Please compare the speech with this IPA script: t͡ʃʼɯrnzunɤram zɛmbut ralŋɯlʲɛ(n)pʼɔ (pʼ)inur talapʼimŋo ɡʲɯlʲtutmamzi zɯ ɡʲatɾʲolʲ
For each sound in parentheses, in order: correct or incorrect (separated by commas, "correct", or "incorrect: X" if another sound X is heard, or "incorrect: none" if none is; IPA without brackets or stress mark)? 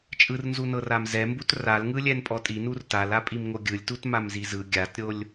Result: correct, incorrect: tʼ